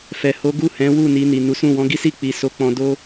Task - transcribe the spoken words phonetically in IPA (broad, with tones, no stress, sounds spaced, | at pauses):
f ɛ˨ h o˨˦ ɡ u˦˨ h ɛ̃˨˦ w u˦˨ n i˧ n i˨ n u˨˦ s ũ˦˨ w ɔ̃˨˦ ɡ i˦ s i˦˨ k͡p i˨ s o˧ k͡p ɔ̃˧ d o˦